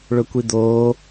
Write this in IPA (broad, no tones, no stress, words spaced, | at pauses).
ɭɵkʷid̪oː